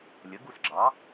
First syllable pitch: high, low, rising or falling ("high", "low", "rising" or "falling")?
rising